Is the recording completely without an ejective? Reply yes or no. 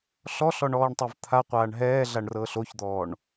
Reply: yes